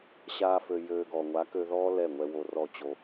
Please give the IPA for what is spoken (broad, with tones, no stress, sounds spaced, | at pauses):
ɕ aː˧ f ø˨ j øː˧ ɡ ɔ˨ ŋʷ a˨˦ k ø˧ ð ɔː˦ l ɛ˦˨ ŋʷ ɛ˧ w o˧ r ɔ˦˨ t͡ɕ o˧